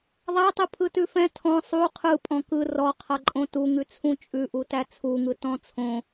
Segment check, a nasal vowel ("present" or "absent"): present